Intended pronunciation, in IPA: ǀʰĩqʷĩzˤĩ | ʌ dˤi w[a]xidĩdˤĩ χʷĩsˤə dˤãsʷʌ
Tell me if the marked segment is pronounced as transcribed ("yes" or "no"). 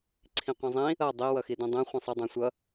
no